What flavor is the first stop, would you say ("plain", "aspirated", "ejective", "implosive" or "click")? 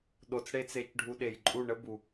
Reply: implosive